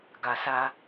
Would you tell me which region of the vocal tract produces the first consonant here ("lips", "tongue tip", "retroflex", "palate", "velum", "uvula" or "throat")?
velum